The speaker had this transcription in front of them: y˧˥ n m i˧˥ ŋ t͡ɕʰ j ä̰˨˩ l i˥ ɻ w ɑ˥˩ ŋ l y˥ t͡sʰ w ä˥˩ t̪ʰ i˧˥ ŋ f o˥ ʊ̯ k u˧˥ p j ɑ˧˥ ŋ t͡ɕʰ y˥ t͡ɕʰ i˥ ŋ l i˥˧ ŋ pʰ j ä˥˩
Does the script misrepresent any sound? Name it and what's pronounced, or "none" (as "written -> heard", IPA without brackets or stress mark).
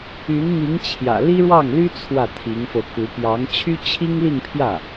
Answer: o˥ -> o˧